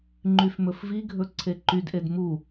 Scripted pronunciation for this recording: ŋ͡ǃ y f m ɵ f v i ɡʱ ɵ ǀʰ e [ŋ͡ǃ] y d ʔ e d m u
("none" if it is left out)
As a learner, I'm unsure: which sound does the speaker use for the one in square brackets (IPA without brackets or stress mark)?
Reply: ǃ